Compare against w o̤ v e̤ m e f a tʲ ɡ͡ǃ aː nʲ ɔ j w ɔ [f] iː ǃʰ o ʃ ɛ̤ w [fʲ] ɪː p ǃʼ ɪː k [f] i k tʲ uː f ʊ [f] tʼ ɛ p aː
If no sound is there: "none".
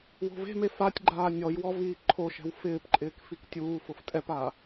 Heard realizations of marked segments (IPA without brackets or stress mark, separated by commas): v, f, f, f